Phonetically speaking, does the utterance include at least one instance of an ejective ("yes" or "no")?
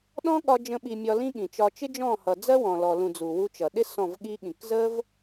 no